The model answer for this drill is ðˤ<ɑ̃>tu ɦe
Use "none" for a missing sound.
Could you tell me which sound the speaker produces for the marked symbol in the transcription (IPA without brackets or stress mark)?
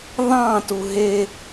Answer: ɑ̃